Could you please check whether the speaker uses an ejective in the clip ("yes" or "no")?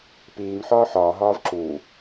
no